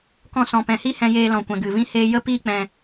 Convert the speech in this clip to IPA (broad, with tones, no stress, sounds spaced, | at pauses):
k ɔ̃˧ s ɔ̃˨ p ɛ̃˨ h i˦ h ɛ̃˧ j eː˧ l ɔ̃˨ kʷ ɛ̃˨ ɡ ɨ˨ v ĩ˦ h eː˦ j ə˦ p iː˦ k͡p ɛ̃˧